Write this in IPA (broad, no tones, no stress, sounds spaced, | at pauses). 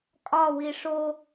kʼ ɒ w i ʂ o